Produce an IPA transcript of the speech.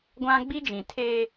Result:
ɡʷ ã˦ ɡ͡b i˦ d͡ʒ ĩ˨ tʰ eː˦

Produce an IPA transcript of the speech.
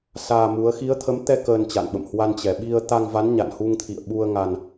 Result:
s aː˧ m u˨˦ ə̯ x i˨˦ ə̯ t̪ʰ ə˨˦ m t̪ ɛ˧ k əː˧ n t͡ɕ a̰˧˨ n ɓ ə̰˧˨ m h w a˧ n t͡ɕ ɛ˨˩ ɓ i˧ ə̯ t̪ a˧ ŋ v a˨˦ n ɲ a̰˧˨ n h u˧ ŋ t̪ʰ ḭ˧˨ ə̯ ɓ u˧ ə̯ ŋ a˧ n

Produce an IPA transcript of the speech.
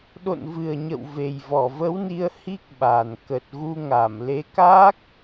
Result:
ɗ o̰˧˨ n v ɨ˨˩ ə̯ ɲ ə̰˧˨ w v e˨˩ j v ɔ˧˩ v ə˨˦ w n i˧ ə̯ h i˦˥ k̚ ɓ a˨˩ n k ə˨˩ t̚ ɣ u˧ ŋ a˧˩ m l e˨˦ k aː˦˥ k̚

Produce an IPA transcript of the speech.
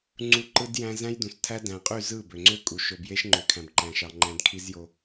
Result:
ŋ͡ǀ u˨ ǃ ɯ˨ d j æ̃˨ z æ̃˦ j d ũ˨ s tʰ æ˦ d æ̃˨ qʼ y˦˨ z ɯ˦˨ b ø˨ ŋ͡ǀ ø˦ kʼ u˨ ʃ o˨ b j e˦ ʃ ŋ͡ǃ ø˨ kʰ æ̃˨ b ǃ æ̃˨ ʃ ɑ˨ ŋ͡ǃ æ̃˦ d kʰ i˦ z j o˦

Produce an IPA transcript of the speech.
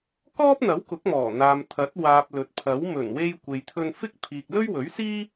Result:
k ɔː˥ p̚ n̪ ɐ˨˥ w k ʊ˨˥ k̚ m ɔː˨˩ n̪ aː˨ m t̪ʰ ɐ˨˥ t̚ w aː˨ p̚ l ɵ˨ t̚ pʰ ɐ˨˥ w m ɵ˨˩ n w e˧ j kʷ e˨ j t̪ʰ ɵ˧ n f ɪ˥ k̚ pʰ iː˨ k̚ l ɵ˥ ɥ w ɵ˨˥ ɥ s iː˥

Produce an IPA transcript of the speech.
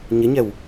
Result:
ɲ ɪ ɲ ɛ w

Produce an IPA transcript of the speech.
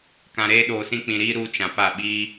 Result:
k ã˨ ɾ eː˦ ɗ oː˨ s ĩ˦ k͡p ĩ˨ ɾ iː˦ ɾ uː˦ t͡ʃ ã˨ p a˦˨ ɓ iː˦

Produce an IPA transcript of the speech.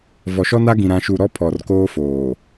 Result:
v ɔ˨ ʃ ɔ˦ n a˦ ɡ ĩ˨ ɾ ã˨ ʃ u˨ ɾ ɔ˦ pʰ ɔ˨ r k oː˦ f oː˨

